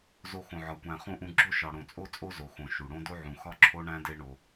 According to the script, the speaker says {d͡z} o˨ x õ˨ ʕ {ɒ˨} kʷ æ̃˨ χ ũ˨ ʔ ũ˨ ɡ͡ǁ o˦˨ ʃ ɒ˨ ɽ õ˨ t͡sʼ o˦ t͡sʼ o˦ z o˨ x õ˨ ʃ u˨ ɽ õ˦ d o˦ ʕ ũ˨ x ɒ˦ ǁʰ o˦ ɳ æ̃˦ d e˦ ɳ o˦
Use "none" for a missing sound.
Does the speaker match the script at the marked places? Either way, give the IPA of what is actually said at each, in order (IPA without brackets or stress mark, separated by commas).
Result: z, ɒ˨